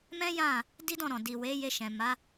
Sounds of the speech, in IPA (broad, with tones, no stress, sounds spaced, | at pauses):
m ɛ̃˦ j ã˦˨ | d i˦ d ɔ̃˦˨ ɾ ɔ̃˨ d i˨ w e˨˦ j e˧ ʃ ɛ̃˨ m a˨˦